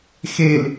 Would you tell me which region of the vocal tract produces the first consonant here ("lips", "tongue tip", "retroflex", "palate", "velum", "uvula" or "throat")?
velum